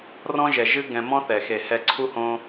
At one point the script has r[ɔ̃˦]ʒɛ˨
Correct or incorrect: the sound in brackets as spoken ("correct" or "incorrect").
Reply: correct